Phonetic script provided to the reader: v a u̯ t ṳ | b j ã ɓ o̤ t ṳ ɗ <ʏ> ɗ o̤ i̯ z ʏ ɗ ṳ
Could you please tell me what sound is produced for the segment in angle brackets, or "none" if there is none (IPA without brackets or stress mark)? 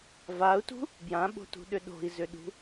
ʏ